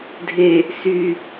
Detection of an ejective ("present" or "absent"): absent